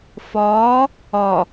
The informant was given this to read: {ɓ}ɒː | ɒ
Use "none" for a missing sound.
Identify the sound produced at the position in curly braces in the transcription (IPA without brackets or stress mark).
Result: f